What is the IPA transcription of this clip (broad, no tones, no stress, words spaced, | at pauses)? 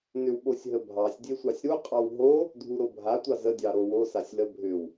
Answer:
nʏwɓosʲɦəbʱɑsʲ dʲesʷɑsʲɾu qʼɑwɦo | dʱuɾobʱa tʷɑzə dʲɑɾowo sasʲlə bʱʏw